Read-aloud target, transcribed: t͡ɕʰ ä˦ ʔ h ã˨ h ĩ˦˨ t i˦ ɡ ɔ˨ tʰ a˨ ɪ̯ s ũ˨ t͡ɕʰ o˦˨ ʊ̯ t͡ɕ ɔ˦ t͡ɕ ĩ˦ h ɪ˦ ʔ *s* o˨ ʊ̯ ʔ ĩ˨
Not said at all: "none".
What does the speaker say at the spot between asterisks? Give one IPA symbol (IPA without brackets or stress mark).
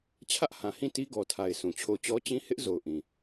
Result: z